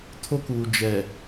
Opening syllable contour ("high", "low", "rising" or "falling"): high